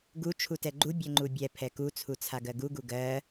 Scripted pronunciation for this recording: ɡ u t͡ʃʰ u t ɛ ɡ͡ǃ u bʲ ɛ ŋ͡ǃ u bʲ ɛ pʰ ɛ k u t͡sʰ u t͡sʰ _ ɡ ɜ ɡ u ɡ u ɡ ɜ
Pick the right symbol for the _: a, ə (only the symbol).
a